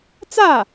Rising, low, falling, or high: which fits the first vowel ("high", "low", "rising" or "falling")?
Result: falling